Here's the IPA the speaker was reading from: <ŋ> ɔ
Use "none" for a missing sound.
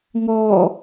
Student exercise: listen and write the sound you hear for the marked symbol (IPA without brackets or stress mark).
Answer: ŋ